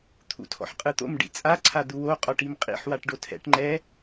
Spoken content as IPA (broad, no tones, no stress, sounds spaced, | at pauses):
t̪ʰ ṵ tʰ ɔ̰ ħ qʼ ɯ t̪ o̰ m ɖ ḭ t͡sʼ a ǀʰ a d̪ u w o qʼ ɔ ʈ i m qʼ ḭ ħ w a ʈ ɖ o tʰ ɛ̰ ʈ ŋ͡ǃ ɛ